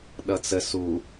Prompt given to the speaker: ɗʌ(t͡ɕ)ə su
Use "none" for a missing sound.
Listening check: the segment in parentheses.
t͡s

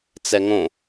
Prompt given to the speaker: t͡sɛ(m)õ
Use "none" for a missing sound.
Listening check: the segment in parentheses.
ŋ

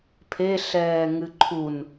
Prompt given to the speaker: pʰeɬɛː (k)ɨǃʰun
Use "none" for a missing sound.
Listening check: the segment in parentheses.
ŋ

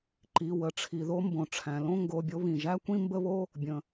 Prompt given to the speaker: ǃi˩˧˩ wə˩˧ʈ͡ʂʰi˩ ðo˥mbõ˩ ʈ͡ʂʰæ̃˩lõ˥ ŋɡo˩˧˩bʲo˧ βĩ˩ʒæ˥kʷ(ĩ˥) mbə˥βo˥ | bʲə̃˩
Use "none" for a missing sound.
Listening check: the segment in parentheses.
ĩ˥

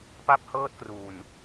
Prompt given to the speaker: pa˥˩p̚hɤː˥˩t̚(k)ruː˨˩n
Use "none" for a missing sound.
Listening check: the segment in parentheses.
k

